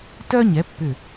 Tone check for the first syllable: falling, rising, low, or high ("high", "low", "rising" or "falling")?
high